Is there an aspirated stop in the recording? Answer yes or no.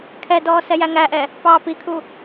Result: yes